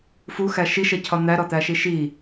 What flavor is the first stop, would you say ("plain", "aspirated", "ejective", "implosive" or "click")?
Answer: aspirated